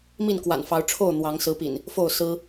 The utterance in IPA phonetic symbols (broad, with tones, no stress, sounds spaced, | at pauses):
m i˥˨ n k w a̰˨˩ n f ɑ˨˦ ʊ̯ ʈ͡ʂʰ o˥˨ ʊ̯ n̪ w ɑ˨˦ ŋ s ɹ̩˨˦ p ḭ˨˩ n | f o˥˨ ʊ̯ s ɹ̩˦